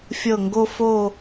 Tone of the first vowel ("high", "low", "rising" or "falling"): falling